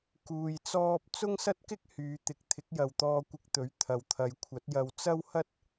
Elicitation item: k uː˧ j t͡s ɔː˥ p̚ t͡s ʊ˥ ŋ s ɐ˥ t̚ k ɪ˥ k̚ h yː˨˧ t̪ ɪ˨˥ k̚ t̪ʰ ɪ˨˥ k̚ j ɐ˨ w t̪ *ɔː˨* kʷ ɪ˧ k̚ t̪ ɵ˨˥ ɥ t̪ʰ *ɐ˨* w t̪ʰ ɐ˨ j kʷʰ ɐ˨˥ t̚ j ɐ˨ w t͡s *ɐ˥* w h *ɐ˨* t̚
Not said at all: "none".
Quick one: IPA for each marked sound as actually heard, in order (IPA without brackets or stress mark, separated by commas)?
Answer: ɔː˧, ɐ˨, ɐ˥, ɐ˥